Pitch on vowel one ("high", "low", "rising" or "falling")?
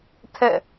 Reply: falling